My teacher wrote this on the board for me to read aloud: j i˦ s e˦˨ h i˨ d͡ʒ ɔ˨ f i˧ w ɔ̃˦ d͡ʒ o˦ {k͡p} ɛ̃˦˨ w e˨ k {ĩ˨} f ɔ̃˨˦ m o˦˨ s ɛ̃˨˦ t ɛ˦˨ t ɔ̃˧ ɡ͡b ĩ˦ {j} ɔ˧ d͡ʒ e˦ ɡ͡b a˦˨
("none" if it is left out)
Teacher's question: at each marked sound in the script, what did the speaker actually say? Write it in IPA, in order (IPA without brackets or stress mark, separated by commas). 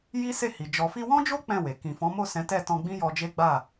k͡p, ĩ˨, j